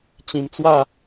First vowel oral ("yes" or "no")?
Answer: no